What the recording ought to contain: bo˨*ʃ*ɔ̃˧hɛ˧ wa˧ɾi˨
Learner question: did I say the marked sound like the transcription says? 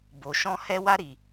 yes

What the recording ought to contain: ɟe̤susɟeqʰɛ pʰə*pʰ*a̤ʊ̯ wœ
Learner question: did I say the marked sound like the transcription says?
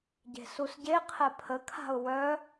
no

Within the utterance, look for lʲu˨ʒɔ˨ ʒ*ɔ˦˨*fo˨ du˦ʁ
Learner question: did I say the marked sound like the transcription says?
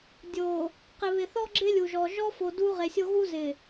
no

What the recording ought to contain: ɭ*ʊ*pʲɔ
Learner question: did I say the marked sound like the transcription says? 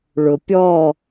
yes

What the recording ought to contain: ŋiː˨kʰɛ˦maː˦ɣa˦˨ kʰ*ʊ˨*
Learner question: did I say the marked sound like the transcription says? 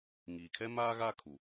no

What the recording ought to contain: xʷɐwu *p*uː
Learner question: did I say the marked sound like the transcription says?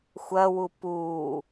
yes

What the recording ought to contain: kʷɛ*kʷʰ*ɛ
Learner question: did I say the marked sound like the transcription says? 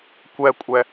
no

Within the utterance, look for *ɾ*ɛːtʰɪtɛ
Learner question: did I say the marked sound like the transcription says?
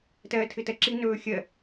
no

